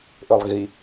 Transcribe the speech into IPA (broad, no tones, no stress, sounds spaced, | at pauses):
ʔ ɵ lˠ ɣ i